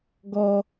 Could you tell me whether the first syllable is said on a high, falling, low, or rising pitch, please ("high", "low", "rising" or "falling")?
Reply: high